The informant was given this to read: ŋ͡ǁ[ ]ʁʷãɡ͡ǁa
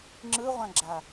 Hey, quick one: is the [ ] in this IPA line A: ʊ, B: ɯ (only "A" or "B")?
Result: B